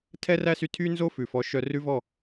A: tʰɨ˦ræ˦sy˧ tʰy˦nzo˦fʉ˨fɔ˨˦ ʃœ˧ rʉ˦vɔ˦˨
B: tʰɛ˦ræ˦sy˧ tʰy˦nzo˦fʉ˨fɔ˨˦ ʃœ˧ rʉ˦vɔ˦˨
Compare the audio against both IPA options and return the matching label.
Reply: B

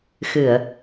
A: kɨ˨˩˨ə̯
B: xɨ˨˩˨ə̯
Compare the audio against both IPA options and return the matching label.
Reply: B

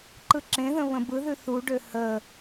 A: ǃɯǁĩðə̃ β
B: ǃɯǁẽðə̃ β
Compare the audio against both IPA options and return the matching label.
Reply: B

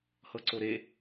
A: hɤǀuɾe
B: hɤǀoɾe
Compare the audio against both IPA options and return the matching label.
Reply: B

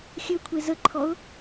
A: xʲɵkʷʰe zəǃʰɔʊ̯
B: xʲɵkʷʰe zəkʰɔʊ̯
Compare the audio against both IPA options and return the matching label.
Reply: A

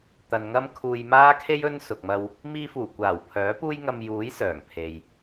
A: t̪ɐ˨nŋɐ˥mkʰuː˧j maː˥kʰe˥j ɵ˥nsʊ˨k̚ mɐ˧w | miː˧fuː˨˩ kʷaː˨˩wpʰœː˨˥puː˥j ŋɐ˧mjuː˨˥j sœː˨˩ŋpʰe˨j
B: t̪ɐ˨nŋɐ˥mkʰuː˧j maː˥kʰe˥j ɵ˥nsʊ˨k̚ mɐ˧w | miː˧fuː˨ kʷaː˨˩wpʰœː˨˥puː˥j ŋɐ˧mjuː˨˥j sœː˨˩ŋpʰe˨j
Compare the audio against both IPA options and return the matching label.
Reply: A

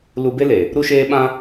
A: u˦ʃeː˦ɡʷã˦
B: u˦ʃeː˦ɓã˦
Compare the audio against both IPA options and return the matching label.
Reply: B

